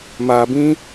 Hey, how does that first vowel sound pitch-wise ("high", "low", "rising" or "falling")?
low